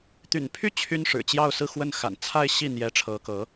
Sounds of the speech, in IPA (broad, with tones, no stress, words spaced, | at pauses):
t̪y̰˨˩npʰy˥˩ t͡ɕʰy˥nʂɻ̩˨˩ t͡ɕjɑ˥˧ʊ̯sɹ̩˥˧xwə˥˩n xa̰˨˩nt͡sʰa˥˧ɪ̯ɕi˥˩ n̪jɛ˧˥ʈ͡ʂʰɤ˧˥kɤ˧˥